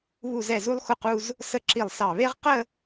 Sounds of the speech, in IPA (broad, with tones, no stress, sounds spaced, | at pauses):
β u˧˩ z ɛ˧˩ z u˧ lˠ x ʊ˧˩ q u˧ z | s ə˥˧ ǁ i˧˩ lˠ s ɑ˧˩ β e˥ ʁ q ə˥˧